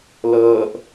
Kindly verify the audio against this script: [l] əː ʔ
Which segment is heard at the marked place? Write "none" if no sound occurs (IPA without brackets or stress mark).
l